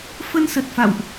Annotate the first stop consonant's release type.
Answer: plain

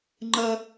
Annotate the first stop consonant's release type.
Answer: click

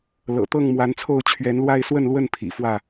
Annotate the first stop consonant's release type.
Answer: plain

